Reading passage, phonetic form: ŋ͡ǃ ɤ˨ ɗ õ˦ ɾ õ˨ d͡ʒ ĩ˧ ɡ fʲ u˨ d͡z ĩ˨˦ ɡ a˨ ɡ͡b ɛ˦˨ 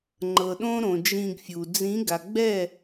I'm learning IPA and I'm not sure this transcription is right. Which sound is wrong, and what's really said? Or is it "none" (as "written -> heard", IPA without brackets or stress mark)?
none